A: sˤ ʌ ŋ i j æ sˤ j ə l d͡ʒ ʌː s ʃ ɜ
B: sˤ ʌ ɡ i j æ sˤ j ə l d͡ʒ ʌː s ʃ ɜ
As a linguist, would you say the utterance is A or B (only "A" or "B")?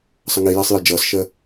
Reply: A